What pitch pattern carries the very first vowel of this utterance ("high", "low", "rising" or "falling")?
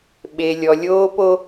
low